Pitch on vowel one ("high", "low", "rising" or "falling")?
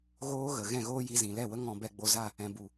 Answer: high